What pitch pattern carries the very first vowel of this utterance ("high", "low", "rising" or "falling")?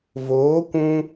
rising